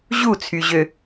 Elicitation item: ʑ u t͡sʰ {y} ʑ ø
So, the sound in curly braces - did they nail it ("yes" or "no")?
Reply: yes